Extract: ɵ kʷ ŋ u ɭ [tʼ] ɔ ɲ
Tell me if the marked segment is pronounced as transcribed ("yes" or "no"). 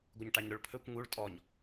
yes